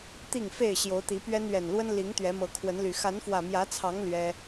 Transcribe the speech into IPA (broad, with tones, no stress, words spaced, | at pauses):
t̪i˥˨ŋfe˥˨ɪ̯ ɕjo˨˦ʊ̯t̪i˨˦pɥɛ˦n ɥɛ˨˩nlwə˦n li˨˦ŋ t̪ɥɛ˨˦mɤ˨˦kʰwə˨˦nly˨˩ xa˨˦nfwä˨˩mjä˨˦t͡sʰɑ˨˦ŋ lɥɛ˦